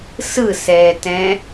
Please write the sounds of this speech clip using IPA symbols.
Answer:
s ɯ s ɛː t ɛ̃

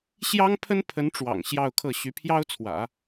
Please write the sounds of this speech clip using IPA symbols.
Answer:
ɕ j ɑ˥ ŋ pʰ ə˥ n pʰ ə˧˥ n ʈ͡ʂ w ɑ̰˨˩ ŋ ɕ j ɑ˥˧ ʊ̯ kʰ ɤ˥˩ ɕ y˧˥ pʰ j ɑ˥ ʊ̯ t͡sʰ w ä̰˨˩˦

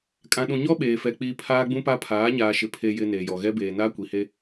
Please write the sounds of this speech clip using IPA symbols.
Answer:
kʼ ã˨ ɗ ũ˨ ɲ ɔ˦ ɓ eː˨ f ɛ˨ k͡p iː˨ pʰ aː˦ ɡ͡b ũ˦ p a˦ pʰ aː˨˦ ɲ aː˨ ʃ ɪ˨ pʰ e˨ j ɪ˨ n eː˨ j ɔ˨ ɣ ɛ˦ b eː˨ n aː˦ kʷ i˨ h e˦

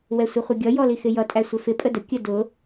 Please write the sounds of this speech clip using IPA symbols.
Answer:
w ɛ sʷ ə χʷ ə ɡʲ ʌ j ɔ l i x ɪ j ʌ tʼ æ sʷ ɪ f ɪ pʼ ə d ə kʲ ə d ʊ

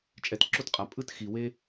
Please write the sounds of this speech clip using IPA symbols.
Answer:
t͡ʃʼ ɛ˩ t ǁ o˥ t qʼ a˩ pʼ ɯ˥ t x i˩ w e˥

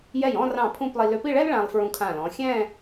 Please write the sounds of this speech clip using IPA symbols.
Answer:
j ɛ˧˩ j ɔ̃˥˧ r ɑ̃˧˩ pʰ ũ˥˧ p lˠ i˧ l ʏ˧ p i˥˧ ɭ ɛ˥ l ɭ ã˧ lˠ f ɹ ũ˧ kʰ ã˧˩ l ɔ̃˩˧ xʲ ɛ̃˥˧

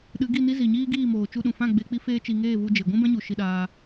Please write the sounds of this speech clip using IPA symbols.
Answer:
ɗ ɨ˨˦ ɡ i˦˨ n i˦ z i˨ ɲ iː˦ ɡ iː˦˨ m oː˨ t͡ʃ u˧ ɗ ũ˨ f ã˦˨ ɡ͡b e˧ k͡p i˦ f eː˦ t͡ʃ i˧ ŋ eː˦˨ v u˧ d͡ʒ e˨ ɡʷ ũ˦ b ɛ̃˦ ɲ u˨ ʃ i˧ ɗ aː˧

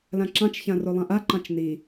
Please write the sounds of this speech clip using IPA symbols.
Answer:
l ã ǁ ɑ̃ t͡ʃ ç ã r o lˠ ã ʔ a ǃ ɑ̃ t͡ʃ n i

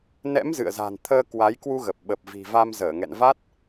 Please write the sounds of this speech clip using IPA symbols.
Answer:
n ɛ̰˧˥ m z ɨ̰˧˨ ə̯ z a̤˨˩ n t̪ʰ əː˧ k w a˨˦ j k w u˧ ɣ ə˨˩ p̚ ɓ ə˨˩ p̚ v i̤˨˩ v a˧ m z əː˧˩ ŋ ɛ̰˧˨ n v a˦˥ t̚

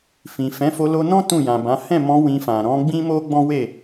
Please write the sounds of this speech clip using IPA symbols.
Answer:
f ĩ˨ f ɛ̃˨˦ f o˧ l o˧ n ɔ̃˦ t ũ˦˨ j ã˨ b ã˨˦ h ɛ̃˦˨ m ɔ̃˧ w ĩ˧ f ã˨ ɾ ɔ̃˨˦ ɡ͡b ĩ˦ m o˦ ɡ͡b ɔ̃˦ w e˦˨

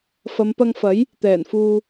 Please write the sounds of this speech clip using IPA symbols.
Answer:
f ɐ˨˧ m p ɐ˧ ŋ f ɐ˨˥ j | t̪ ɛː˨˩ n f uː˨

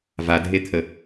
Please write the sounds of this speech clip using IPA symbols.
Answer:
v a dʱ e t̪ʰ ə

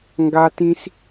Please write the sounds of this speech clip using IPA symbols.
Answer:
ŋ ɡ a˦ t ĩ˦ s

